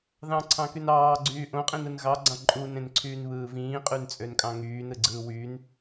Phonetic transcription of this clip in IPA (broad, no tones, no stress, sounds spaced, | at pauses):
ð ɑ̃ ǀʰ ɑ̃ k y n ɑː ɡ͡ǀ yː ʔ õ qʼ ĩ n ɯ n ɣ ɑ ɡ͡ǀ ɑ̃ ǃʼ u n ẽ n ǀʰ yː n β ɯː v ĩː qʼ y n t͡sʼ ø n kʼ ɑ̃ ŋ yː n ɯ ɡ͡ǀ ɯː w yː n